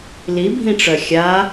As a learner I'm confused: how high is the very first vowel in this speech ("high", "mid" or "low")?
high